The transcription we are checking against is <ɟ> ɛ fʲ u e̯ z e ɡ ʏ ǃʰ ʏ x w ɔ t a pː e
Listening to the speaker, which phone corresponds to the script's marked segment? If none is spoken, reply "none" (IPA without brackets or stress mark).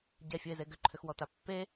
ɟ